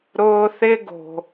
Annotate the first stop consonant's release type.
plain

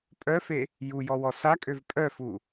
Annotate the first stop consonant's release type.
ejective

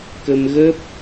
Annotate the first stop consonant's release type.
plain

